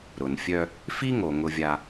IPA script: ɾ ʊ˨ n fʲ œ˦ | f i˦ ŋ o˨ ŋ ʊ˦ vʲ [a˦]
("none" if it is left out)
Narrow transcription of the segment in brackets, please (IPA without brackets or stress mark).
a˦